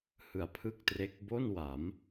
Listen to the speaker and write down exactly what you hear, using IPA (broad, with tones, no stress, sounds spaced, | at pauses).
h ɯ˩˦ a̯ pʰ ɯ˥˩ k̚ t r e˦˥ k̚ b o˥˩ n w a˩˦ m